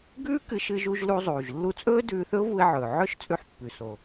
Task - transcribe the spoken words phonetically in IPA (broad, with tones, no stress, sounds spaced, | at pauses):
ɡ ʉː˥ k ɨ˧ ʃ ɨ˧ ʒ u˧ ʒ l u˧ zˤ uː˩ ʒ lː u˧ t͡sʼ ɵː˥ d ʉː˧ θ ɵ˥ ʊ̯ v u˧ ɪ̯ ʕ ɵː˩ ʕ ɵ˥ ʃ t͡sʼ ʉ˧ ħ pː ʉ˩ s o˩